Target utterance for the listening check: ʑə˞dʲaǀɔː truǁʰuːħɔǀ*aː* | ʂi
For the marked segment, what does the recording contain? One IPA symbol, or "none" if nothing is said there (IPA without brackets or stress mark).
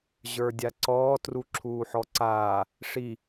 aː